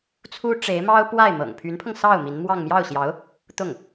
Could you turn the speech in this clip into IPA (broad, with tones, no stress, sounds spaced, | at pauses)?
t͡sʰ u˥ ʈ͡ʂ e˧˥ ɪ̯ m ɑ˥ ʊ̯ p w a˥˩ ɪ̯ m ɤ̰˨˩ ŋ pʰ y˧˥ n pʰ ɤ˧ ŋ s ɑ˥˩ ʊ̯ m i˧˥ n m w ɑ˥˧ ŋ m j ɑ˥˩ ʊ̯ ɕ j ɑ˧˥ ʊ̯ | t̪ ʊ˥˩ ŋ